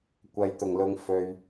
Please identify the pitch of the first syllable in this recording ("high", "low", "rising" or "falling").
low